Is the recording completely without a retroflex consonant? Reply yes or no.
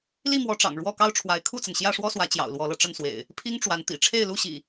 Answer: no